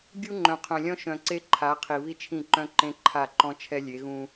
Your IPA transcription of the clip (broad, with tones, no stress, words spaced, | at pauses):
ɡʲu˦ŋ͡ǃœ̃˨qʰœ̃˨lʲɔ̃˦ ʃœ̃˨ǀe˦ǃʰa˨˦ qʰi˨βi˦t͡ʃʰĩ˦˨ǃœ̃˦ ǃẽ˦ǃʰa˦˨ǃɔ̃˦ t͡ʃʰɛ˦lʲe˨˦ɣũ˦